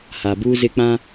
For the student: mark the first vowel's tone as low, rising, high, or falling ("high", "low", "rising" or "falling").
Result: low